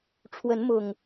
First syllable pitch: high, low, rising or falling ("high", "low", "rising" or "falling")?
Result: rising